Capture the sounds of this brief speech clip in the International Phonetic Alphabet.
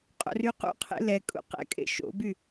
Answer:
qʼ o̰ r y q ṵ qʰ ḛ l ɛ kʼ ṵ q ɛ̰ kʼ ḛ ʃ o̰ b y

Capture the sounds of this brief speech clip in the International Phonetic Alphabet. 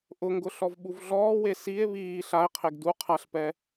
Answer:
ʔ ʊ ŋ ɡ ʊ ɬ ɔ v ɓ u v ɮ ɔː w e s i e̯ β iː ɬ a e̯ qʰ e ɡ d u qʰ a ɬ p ɛ

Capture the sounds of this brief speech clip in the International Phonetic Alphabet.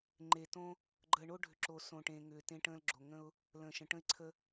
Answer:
ŋ͡ǃ e˩ t õ˧ | ɡ͡ǃ əː˩ ɳ oː˧ ɖʱ ʏ˩ ǁ o˩ s õ˩ ʈ ẽː˩ ŋ ʏː˩ t ẽ˧ ʈ ə̃ː˧ l ɡ͡ǁ o˩ ŋ ə̃˧ ʊ̯ | l ə̃ː˩ ʃ ə̃˩ ʈ ə̃˧ ɪ̯ ǀʰ ə˧

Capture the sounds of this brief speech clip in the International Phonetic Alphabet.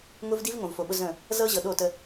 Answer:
ŋ ʊ˦ v d i˦ v ŋ õ˨ v f o˨ ɓ ʊ˦ z ə̃˦˨ | z ɤ˦ ʑ ɤ˨ ɗ o˦˨ t ə˦

